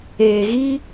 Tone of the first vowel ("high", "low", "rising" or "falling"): low